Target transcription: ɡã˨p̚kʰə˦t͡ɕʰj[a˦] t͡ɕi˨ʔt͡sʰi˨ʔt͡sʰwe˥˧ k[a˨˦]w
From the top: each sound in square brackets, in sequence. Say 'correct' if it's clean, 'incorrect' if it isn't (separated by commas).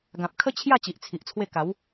incorrect, correct